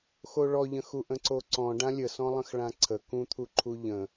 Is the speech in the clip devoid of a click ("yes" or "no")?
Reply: no